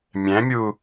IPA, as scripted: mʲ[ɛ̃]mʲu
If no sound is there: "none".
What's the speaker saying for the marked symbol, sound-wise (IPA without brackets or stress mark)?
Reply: ɛ̃